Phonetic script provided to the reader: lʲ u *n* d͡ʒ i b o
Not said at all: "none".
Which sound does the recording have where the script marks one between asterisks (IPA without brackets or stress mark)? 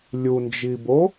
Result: n